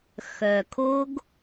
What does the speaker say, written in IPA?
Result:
x œ˨ kʰ o˦ ɡ

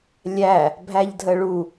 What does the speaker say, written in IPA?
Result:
lʲ æ | bʱ æ ʎ dʱ ə ɭ u

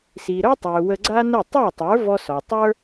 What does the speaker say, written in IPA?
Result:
s i˩ ɾ œ˥ tˤ ø˩ w ə˧ ɡ͡ǀ a˥ n ə˥˩ tˤ œ˥˩ tˤ ə˞˩˥ v ɔ˧ s ɔ˩ tˤ ə˞˥

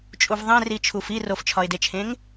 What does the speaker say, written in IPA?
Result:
t͡ʃʼ u v ðˤ ẽ r i t͡ʃʰ u f i r o f t͡ʃʰ ɒ ɪ̯ d e t͡ʃʰ ẽ ŋ

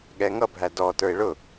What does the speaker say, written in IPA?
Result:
ɠ ɛ ŋ ʌ bʱ æ d ɔ t ə˞ ɪ̯ ɭ ʊ

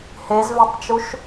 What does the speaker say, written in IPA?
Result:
h e z v e tˤ t͡ʃ u ʃ

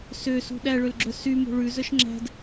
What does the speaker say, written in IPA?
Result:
s ø s ṳ ɗ æ ɭ ø l ɡ͡ǁ œ s y m o̤ ɭ ʉ z œ ʃ ŋ͡ǁ æ̤ d

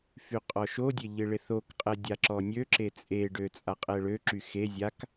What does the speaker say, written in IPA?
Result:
f y qʼ ɔ ʃ o dʲ e ʎ ɪ ɭ ɪ θ o k qʼ ɛ dʲ a ǁ ɔ nʲ ø ǁ e t͡sʼ e ɖ ø t͡sʼ a qʼ ɛ ɭ ø ǁ y x e zʲ a k

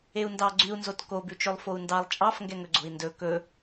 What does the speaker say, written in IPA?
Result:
e u̯ n d ɑ ɡ͡ǀ y u̯ n z o t k o b ʉ t͡ʃ ø lˠ f o u̯ n d ɑ lˠ t͡ʃʼ ɑ f ŋ ɡ ɛ ŋ ɵ ɡ͡ǀ o̤ i̯ n d ɵ k ɵ

